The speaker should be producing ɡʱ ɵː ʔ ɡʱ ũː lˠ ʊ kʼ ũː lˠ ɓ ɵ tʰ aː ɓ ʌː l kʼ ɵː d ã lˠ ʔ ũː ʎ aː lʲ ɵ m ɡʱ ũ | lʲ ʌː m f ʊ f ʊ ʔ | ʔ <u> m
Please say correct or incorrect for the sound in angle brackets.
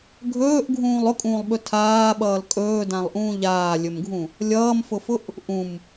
incorrect: ũ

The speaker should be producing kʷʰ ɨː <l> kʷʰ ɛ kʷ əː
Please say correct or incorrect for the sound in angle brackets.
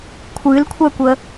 correct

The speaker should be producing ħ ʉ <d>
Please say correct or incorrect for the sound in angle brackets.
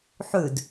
correct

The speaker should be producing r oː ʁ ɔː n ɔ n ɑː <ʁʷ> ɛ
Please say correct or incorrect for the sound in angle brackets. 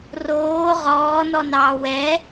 incorrect: w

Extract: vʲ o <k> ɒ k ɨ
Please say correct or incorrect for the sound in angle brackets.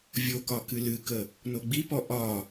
correct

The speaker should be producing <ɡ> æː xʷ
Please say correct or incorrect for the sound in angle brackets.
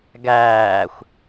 correct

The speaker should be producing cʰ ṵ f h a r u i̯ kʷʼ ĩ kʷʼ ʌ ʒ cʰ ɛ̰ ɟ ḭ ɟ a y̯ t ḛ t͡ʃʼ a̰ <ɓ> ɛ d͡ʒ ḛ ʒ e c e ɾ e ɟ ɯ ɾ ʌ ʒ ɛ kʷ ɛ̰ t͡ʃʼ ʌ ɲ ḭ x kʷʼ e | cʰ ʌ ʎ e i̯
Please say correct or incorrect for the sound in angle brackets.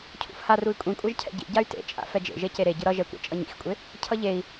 incorrect: f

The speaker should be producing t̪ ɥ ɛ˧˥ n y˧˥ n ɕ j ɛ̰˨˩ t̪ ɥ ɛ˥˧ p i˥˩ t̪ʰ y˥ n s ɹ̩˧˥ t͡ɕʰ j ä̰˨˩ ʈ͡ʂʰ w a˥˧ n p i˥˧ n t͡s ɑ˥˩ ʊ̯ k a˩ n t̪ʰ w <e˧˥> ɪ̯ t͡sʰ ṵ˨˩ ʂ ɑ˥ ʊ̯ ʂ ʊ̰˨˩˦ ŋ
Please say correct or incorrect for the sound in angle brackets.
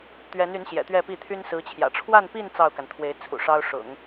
correct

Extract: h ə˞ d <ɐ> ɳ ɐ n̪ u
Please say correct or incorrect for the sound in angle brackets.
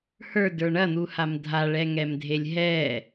incorrect: ə˞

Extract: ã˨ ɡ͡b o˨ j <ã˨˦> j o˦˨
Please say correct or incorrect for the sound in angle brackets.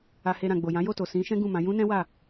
correct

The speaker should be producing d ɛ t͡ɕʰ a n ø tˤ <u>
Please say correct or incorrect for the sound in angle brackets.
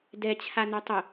incorrect: ʊ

